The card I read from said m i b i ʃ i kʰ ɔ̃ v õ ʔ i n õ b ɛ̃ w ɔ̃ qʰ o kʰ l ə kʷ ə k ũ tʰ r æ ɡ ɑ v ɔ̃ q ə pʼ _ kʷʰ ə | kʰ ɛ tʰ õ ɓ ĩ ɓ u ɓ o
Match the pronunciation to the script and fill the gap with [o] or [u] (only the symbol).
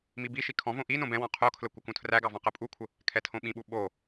u